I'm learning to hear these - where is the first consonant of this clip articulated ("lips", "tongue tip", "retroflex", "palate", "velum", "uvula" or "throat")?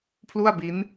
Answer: lips